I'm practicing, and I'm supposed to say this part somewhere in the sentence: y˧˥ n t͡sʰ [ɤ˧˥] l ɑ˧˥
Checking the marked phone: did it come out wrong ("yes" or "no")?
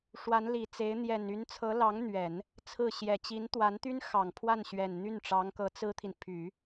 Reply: no